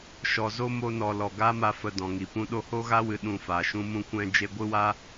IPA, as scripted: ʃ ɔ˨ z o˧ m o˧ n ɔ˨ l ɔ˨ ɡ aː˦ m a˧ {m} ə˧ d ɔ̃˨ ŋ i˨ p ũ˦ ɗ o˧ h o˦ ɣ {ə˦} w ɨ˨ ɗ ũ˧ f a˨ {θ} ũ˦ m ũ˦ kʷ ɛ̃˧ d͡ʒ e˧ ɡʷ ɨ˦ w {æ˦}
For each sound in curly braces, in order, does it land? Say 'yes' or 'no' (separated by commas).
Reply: no, no, no, no